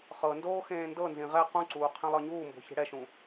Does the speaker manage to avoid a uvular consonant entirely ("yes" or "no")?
no